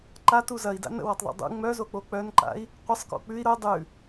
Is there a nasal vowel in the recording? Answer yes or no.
no